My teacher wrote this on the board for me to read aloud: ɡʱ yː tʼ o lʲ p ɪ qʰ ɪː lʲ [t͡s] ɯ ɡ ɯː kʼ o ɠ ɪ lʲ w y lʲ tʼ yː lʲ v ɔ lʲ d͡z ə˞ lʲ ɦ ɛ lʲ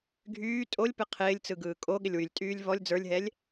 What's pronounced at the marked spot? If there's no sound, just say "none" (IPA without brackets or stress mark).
t͡s